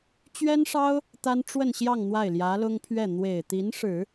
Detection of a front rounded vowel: absent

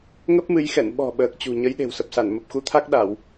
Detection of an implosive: present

